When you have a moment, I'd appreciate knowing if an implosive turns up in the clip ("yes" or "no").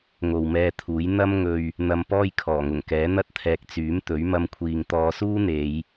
no